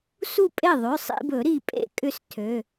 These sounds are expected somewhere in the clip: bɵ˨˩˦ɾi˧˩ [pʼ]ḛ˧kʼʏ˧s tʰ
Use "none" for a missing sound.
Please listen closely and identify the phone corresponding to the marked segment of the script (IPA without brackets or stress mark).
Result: pʼ